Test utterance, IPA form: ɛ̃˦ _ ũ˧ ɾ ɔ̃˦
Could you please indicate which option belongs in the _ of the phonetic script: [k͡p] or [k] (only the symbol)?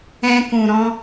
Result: k